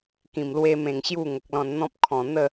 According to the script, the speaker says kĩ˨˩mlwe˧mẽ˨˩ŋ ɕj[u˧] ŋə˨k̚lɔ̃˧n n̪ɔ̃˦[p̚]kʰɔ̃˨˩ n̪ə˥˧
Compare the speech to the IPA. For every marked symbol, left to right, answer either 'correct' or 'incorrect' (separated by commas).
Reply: incorrect, correct